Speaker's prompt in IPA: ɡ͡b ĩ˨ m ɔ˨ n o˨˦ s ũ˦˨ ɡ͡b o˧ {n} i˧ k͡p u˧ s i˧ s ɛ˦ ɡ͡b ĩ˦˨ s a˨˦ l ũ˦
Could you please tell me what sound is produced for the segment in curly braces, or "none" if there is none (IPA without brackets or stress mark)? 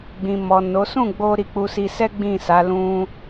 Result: ɾ